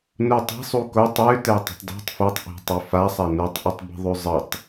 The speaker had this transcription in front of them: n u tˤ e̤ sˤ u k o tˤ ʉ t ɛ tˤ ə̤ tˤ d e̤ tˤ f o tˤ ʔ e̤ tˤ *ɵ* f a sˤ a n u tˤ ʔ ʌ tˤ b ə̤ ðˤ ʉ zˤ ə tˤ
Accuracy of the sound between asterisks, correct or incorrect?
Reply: correct